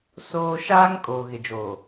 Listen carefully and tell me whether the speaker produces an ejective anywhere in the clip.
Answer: yes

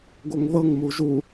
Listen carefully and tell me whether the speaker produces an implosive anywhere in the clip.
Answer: no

